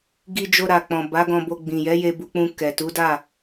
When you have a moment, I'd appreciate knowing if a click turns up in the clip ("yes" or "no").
no